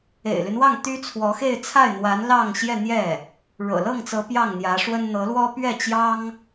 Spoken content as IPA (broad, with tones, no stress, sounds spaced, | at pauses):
ḛ˨˩ ɪ̯ l y˦ n w ɑ˥˩ ŋ t̪ y˥ t͡sʰ w ɔ˧˥ x e˥˧ ɪ̯ t͡sʰ a˥˩ ɪ̯ n̪ w a˧˥ n l ɑ˥˧ ŋ ɕ j ɛ˥˧ n̪ j ɛ˥˩ | ɻ ɤ̰˨˩ l ɤ˥˩ ŋ t͡s ɤ˧˥ p j ɑ˥˩ ŋ n̪ j ä˧˥ ʂ w ə˥ n n̪ ɤ˧˥ l w ɔ˥ p ɥ ɛ˥˩ t͡ɕ j ɑ˥ ŋ